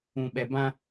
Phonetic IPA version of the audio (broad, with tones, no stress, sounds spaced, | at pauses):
ũ˨ ɓ ɛ˨ b ã˦